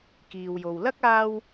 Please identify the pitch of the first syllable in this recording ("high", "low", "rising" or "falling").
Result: low